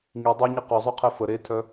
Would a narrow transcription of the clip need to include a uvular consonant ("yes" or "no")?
yes